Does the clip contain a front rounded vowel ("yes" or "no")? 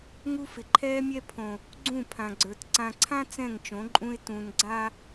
no